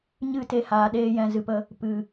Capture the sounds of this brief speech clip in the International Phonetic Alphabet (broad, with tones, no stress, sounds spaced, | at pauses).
ɲ ɨ˦˨ t e˧ h aː˨ ɗ eː˦ j ɛ̃˧ z ɨ˧ p ə˧ | p ɨ˨